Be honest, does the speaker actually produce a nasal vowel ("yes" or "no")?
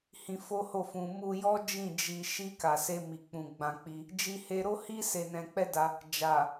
yes